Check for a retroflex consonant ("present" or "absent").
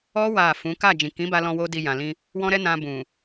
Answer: absent